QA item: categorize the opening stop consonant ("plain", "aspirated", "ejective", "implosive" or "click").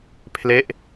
aspirated